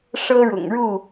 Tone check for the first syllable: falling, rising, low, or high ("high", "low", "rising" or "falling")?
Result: high